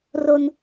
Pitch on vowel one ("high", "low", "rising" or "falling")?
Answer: high